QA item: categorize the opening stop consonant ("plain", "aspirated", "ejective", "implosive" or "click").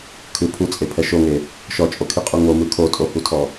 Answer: aspirated